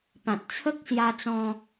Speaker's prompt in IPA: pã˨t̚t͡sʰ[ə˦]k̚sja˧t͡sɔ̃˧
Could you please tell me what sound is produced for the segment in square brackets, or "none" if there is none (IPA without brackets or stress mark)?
ə˦